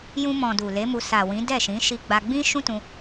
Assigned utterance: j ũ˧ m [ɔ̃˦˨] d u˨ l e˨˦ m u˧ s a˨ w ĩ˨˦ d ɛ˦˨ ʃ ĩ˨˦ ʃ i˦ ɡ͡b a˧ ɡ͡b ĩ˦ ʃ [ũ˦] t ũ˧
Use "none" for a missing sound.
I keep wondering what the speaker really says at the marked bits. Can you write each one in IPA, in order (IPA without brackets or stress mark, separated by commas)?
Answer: ɔ̃˨, ũ˦